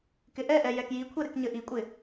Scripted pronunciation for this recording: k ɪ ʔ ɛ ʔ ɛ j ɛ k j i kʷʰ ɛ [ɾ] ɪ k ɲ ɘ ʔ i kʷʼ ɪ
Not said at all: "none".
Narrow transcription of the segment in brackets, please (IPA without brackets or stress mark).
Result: ɾ